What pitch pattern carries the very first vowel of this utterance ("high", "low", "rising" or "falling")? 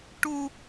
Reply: high